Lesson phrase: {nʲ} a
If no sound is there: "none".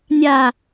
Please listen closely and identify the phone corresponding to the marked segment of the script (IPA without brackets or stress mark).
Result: nʲ